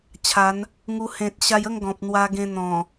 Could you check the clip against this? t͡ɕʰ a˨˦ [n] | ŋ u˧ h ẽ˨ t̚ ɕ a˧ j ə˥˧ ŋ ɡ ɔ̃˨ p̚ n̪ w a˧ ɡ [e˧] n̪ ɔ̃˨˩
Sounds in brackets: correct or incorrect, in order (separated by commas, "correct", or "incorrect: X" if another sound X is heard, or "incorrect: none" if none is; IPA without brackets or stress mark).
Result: correct, incorrect: ẽ˧